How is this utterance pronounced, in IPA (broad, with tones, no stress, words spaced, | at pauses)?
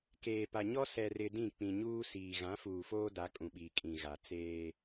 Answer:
keː˨pa˨ɲɔ˦ sɛ˨rɪ˨ dĩ˦˨k͡pĩ˨ɲuː˦ siː˨ ɣã˨˦fuː˨foː˦ da˨˦kʼũ˨ɓiː˨ kʼĩ˨ɣa˨ t͡seː˦